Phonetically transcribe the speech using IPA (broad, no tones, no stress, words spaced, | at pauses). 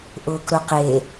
ʔʊːkɾʊqe